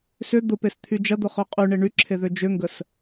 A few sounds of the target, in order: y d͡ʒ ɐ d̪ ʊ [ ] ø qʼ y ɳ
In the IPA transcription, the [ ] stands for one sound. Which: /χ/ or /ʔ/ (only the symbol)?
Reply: χ